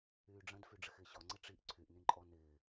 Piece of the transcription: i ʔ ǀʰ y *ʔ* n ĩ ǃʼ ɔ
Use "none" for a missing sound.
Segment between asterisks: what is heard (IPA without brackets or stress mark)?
ʔ